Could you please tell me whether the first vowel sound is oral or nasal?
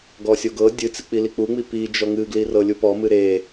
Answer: oral